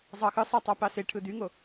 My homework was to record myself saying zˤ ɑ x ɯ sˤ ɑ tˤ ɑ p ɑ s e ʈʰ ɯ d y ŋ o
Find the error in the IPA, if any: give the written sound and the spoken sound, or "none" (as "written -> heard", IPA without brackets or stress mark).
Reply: none